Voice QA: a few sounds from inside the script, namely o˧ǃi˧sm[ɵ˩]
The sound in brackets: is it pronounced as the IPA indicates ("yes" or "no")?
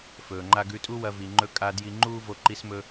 no